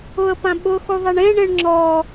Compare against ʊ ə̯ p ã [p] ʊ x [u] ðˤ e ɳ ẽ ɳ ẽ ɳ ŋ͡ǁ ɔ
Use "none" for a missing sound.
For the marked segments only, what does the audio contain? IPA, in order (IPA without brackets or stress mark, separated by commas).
ɓ, u